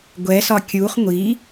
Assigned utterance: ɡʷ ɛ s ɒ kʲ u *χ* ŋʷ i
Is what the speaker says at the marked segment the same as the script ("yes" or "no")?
yes